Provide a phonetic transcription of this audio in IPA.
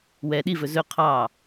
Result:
w ɛ ɗ i v ɵ z ɵ qʰ ɑ

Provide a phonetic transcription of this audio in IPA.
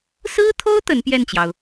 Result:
s ɹ̩˥ t̪ʰ o˥ ʊ̯ t̪ ə˧˥ n p j ɛ˥˩ n t͡ɕ j ɑ˩ ʊ̯

